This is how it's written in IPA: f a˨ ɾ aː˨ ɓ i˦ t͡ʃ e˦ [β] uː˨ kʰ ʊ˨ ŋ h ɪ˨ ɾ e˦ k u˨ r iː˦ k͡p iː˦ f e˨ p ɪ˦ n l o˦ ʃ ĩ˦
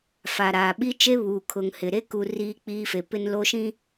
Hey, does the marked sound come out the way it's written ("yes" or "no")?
yes